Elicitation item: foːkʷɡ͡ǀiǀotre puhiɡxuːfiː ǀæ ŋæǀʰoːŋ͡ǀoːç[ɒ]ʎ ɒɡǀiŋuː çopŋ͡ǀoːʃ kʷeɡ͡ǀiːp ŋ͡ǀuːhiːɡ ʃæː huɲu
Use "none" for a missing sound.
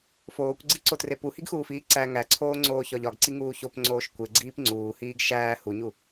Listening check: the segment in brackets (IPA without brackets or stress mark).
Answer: ɒ